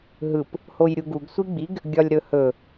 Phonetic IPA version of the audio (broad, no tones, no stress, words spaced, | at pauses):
ɦɯp | hojɾʲuɡuɡ sʷiɡ͡biɡ | ɡʲɒlʲɾɵhɵ